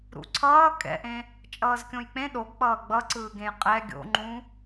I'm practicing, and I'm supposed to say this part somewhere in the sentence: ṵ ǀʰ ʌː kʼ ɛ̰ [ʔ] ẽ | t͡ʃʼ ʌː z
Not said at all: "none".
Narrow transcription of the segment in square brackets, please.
ʔ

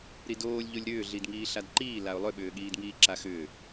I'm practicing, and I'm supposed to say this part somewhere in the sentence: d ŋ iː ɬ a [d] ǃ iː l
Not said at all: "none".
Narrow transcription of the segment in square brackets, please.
d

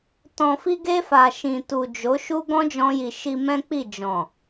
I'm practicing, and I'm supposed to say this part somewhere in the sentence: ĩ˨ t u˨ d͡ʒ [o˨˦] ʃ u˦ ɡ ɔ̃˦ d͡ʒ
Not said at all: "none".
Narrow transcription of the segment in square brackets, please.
o˨˦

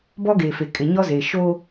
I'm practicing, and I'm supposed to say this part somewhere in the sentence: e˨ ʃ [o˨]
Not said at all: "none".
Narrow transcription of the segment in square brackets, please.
o˦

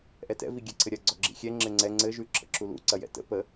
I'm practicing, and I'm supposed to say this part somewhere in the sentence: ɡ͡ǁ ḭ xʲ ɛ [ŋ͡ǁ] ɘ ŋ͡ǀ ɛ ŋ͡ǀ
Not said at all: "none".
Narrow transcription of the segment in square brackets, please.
ŋ͡ǁ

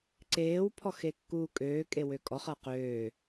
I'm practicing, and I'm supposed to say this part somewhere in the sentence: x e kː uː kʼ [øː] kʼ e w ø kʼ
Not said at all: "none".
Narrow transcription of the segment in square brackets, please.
øː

